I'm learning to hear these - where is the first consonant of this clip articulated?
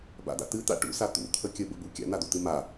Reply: lips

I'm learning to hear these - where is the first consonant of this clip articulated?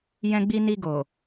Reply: palate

